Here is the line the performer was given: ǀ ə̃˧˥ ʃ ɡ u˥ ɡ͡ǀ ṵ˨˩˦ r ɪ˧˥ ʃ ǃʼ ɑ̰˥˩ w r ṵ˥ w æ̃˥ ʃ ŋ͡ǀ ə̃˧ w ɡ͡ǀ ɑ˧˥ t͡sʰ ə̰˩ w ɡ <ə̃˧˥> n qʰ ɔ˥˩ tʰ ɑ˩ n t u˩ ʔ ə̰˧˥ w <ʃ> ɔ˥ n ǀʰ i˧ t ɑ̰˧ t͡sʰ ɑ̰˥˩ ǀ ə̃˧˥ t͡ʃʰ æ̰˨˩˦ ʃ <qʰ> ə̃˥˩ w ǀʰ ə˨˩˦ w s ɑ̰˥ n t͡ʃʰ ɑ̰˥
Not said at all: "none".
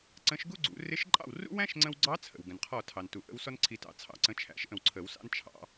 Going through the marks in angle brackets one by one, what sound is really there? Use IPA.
ə̃˩, s, ʔ

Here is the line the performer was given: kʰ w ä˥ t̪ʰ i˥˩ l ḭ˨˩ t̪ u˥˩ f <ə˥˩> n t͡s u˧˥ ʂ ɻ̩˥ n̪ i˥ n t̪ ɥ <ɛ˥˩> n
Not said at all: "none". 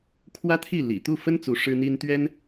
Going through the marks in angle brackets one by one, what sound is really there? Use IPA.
ə˥, ɛ˥

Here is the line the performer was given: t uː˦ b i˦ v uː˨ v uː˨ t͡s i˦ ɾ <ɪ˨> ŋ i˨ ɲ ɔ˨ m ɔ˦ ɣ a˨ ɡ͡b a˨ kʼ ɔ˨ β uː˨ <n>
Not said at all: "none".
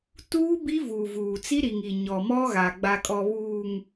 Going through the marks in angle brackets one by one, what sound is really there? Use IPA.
i˨, ŋ

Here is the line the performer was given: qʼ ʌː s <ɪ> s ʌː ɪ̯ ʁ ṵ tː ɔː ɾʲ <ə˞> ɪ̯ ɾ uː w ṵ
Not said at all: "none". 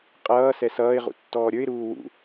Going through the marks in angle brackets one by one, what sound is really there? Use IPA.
ɛ, ə˞

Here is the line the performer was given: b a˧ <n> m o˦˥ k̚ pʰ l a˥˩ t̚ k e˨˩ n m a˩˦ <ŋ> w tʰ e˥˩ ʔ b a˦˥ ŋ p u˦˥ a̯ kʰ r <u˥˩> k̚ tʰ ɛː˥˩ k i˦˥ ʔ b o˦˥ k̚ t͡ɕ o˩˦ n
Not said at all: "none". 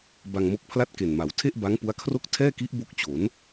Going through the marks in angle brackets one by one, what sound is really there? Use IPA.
ŋ, none, o˥˩

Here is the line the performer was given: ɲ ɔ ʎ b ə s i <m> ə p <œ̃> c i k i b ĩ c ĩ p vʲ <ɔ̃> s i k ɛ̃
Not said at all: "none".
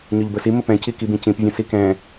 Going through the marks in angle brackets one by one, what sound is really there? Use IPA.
m, ɛ̃, ə̃

